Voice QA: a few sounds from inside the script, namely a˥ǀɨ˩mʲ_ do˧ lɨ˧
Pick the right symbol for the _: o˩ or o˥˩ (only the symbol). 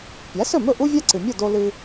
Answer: o˥˩